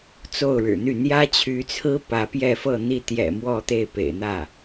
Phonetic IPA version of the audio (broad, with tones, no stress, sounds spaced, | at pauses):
t͡s o˥˩ ʊ̯ ɻ ɻ̩˨˩ n̪ y˥˩ n̪ j ä˥ t͡ɕʰ y˧˥ t͡sʰ ɹ̩˥ p ä˧˥ p j ɛ˥˧ f ɤ˥˧ n̪ i˥˩ t̪ j ɛ̰˨˩ m w ɔ˥˧ t̪ e˥˩ ɪ̯ p ḛ˨˩ ɪ̯ n̪ ä˥˩